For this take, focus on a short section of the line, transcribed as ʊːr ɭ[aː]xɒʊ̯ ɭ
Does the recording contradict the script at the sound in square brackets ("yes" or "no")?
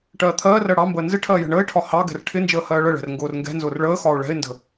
yes